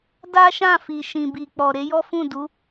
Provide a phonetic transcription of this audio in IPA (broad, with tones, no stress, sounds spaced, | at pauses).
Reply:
d a˦ ʃ ã˦˨ f i˨ ʃ ĩ˨ b i˨ k͡p ɔ˨ ɾ e˨˦ j ɔ˦ f ũ˦˨ d u˨˦